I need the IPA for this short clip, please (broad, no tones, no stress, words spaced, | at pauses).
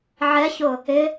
ʕɛçʊ | ɪ